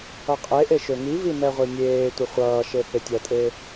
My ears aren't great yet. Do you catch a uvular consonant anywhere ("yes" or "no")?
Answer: yes